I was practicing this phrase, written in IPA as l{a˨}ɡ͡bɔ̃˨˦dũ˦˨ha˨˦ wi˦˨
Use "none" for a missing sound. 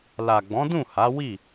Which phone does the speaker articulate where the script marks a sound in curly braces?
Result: a˨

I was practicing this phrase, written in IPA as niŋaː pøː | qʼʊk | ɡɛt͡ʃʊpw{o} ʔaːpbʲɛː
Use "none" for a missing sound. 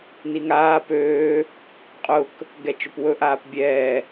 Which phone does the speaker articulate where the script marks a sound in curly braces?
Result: ɵ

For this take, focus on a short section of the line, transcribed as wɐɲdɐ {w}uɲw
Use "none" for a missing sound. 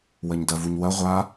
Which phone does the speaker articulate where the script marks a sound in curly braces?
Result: v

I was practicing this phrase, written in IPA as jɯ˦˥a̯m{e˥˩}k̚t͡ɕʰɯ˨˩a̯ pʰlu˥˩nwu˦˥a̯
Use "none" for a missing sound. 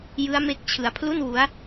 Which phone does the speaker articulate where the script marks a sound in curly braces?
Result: e˦˥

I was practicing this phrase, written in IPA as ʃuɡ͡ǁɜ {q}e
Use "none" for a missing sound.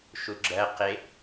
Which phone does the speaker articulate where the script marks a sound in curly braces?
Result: q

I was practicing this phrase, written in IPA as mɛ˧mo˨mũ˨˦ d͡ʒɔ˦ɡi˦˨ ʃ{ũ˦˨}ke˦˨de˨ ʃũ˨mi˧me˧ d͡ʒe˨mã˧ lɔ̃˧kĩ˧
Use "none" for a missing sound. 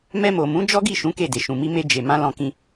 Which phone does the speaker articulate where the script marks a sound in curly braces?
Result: ũ˨˦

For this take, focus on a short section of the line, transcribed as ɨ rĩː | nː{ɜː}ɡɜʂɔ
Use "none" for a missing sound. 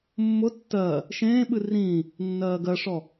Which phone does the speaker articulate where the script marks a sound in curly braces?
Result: ɜː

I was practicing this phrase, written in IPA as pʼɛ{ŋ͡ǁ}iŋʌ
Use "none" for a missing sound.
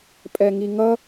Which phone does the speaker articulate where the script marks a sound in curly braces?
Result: ŋ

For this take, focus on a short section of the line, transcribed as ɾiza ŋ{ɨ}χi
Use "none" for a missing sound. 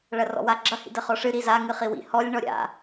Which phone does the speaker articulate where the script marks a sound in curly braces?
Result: ɨ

